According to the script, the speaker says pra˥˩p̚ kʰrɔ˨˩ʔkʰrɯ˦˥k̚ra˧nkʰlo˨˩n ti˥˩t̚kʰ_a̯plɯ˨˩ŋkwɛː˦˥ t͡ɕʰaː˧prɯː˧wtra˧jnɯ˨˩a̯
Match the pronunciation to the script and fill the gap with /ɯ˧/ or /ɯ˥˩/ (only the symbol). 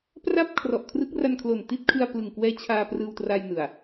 ɯ˧